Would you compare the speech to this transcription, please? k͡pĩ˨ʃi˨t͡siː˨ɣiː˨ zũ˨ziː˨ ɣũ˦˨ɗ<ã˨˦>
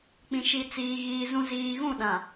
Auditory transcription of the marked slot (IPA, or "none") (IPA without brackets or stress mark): ã˨